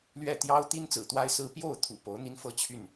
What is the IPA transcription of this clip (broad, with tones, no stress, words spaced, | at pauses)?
lɥɛ˥˩ t̪jɑ˥ʊ̯t̪i˥n t͡sɹ̩˨˩t̪wa˥ɪ̯sɹ̩˥ pjo˥˩ʊ̯t̪ʰṵ˨˩ po˧˥ʊ̯n̪i˥nfɤ˥ t͡ɕʰy˥˩n